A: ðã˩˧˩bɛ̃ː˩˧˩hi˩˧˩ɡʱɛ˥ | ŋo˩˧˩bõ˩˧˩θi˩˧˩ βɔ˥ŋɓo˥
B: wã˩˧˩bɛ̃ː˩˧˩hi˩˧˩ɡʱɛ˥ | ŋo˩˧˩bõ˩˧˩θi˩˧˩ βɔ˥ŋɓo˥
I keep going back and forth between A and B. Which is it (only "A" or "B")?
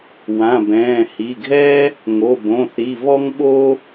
B